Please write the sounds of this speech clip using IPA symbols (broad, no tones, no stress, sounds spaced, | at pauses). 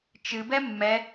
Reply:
t͡ʃ ɨ b ɛ mː ɛ